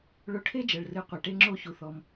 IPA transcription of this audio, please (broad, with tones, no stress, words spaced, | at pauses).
ɭo˧ʈʰe˥ d͡ʒɐ˩ɭrɨ˩˥ qʷɐ˩ʈe˧ ŋ͡ǁo˥˧çu˩θɔ˩m